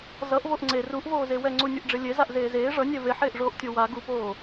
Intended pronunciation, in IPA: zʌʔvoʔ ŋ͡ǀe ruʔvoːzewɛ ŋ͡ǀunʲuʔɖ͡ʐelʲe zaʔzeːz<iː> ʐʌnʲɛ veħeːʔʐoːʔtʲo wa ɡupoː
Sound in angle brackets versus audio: incorrect: eː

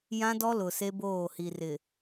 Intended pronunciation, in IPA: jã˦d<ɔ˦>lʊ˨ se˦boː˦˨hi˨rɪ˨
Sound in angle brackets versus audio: correct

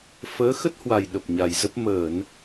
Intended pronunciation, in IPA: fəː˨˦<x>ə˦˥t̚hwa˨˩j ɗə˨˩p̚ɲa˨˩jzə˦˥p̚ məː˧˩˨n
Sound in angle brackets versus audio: correct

